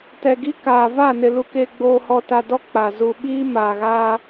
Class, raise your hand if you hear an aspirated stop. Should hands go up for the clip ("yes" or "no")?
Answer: no